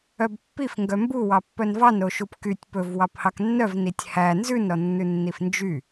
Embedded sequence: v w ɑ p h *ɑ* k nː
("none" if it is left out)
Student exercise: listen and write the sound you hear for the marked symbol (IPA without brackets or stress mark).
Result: ɑ